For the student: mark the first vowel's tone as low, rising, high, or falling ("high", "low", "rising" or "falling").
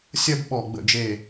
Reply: high